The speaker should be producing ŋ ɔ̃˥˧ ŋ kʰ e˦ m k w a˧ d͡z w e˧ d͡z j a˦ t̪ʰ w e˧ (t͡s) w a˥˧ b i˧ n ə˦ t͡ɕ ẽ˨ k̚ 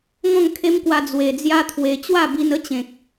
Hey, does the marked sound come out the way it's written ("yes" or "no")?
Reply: no